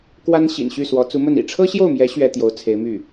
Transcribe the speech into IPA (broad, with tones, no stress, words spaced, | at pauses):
kwa˥nɕḭ˨˩nɕy˥˩swɔ˧˥ t͡su˧˥mə˥˩n ḭ˨˩ʈ͡ʂʰɤ˥ɕjo˥˩ʊ̯mjɛ˧˥ ɕɥɛ˥t̪jo˧˥ʊ̯t͡sʰe˧˥ɪ̯my˥˩